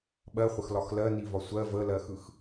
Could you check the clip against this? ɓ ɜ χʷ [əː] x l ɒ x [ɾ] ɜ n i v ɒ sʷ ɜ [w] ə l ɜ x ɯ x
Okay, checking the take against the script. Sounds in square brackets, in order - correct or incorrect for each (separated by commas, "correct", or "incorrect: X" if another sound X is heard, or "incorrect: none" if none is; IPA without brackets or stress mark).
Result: incorrect: ə, incorrect: l, incorrect: v